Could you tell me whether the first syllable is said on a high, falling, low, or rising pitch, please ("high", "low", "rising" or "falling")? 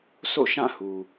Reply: falling